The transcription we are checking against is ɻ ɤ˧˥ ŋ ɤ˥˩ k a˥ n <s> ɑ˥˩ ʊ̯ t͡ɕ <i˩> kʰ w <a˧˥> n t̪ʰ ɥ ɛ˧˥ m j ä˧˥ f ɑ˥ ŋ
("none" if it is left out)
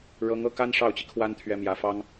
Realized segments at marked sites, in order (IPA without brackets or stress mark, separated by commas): ʂ, i˩, a˥